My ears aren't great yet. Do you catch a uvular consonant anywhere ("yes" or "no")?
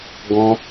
no